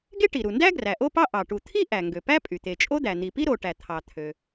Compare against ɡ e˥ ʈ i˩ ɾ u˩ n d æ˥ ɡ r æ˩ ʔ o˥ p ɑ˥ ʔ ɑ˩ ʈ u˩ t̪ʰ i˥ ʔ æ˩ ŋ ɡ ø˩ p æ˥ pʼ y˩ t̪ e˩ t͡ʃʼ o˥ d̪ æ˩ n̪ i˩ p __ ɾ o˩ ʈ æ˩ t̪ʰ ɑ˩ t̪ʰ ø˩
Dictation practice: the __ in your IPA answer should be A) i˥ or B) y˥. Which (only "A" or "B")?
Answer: A